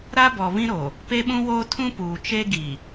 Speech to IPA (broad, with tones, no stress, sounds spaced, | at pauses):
ɾ a˦ b ɔ˨ β ĩ˦ ɾ o˨ | p e˦ ɓ ũ˦ w oː˦ tʰ ũ˦ p uː˨ t͡ʃ e˦ ɡ i˨